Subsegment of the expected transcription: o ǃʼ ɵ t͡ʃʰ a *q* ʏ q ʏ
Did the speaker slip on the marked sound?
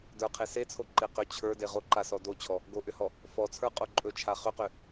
yes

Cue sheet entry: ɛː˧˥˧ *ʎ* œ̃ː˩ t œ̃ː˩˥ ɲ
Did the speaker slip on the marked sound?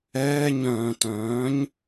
yes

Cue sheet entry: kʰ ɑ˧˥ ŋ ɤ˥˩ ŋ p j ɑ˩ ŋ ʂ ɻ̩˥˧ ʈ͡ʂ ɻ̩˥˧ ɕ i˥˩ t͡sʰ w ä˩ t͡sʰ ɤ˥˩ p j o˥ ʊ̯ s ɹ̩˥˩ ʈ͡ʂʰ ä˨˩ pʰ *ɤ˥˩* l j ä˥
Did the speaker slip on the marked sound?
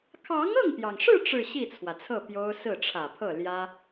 no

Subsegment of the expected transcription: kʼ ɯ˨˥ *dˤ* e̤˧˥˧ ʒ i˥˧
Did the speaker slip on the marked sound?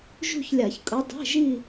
no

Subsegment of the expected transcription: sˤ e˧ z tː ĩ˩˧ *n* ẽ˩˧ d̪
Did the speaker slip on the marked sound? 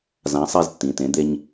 yes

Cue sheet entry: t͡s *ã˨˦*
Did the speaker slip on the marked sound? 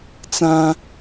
yes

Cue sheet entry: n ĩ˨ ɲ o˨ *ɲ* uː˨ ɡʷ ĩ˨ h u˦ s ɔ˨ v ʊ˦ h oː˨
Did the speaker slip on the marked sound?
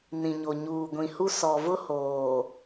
no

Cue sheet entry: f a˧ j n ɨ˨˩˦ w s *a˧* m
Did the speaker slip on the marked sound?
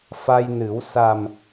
yes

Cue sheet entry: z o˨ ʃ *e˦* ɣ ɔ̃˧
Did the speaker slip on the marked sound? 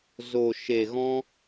yes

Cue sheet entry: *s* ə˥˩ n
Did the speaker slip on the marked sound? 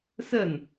no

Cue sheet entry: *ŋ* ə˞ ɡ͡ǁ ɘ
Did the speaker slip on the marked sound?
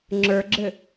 yes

